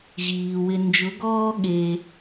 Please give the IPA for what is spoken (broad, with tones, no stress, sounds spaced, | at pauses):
ʑ iː˨ w ɪ˧ n d͡ʒ ʊ˨˦ ɡ ɔː˦ ɠ e˧